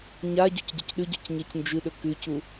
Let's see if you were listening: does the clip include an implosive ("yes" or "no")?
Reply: yes